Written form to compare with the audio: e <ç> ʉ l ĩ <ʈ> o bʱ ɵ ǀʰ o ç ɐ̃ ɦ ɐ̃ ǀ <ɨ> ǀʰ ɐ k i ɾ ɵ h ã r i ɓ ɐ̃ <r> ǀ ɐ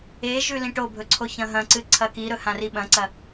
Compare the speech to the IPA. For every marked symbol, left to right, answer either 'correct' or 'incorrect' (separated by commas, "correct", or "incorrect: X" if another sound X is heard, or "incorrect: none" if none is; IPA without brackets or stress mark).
incorrect: ʒ, correct, correct, incorrect: none